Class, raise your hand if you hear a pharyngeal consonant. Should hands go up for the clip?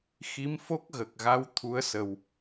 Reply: no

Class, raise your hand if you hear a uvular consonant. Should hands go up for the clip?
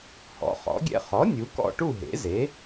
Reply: yes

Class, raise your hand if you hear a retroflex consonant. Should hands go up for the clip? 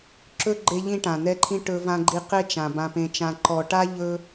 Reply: yes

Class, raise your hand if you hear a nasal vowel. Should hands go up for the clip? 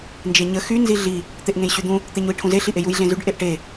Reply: yes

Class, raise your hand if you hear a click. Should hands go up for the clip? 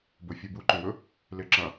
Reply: yes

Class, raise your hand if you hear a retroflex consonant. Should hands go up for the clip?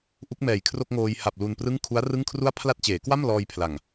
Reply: no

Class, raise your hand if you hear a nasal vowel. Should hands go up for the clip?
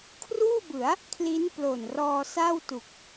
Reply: no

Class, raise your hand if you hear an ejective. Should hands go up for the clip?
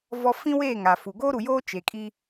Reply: yes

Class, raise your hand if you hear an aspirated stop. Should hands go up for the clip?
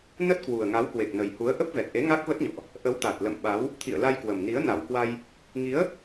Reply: yes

